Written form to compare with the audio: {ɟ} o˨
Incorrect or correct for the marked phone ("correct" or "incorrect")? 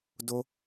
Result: incorrect